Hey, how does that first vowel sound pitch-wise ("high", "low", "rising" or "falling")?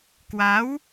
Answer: rising